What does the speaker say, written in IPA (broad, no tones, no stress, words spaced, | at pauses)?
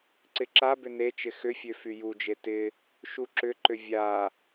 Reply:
ǀɪǁabʏ net͡ʃɪ xʏfʲø fyjud͡ʒe tɪ | ʃuǁʏǃʏ vʲa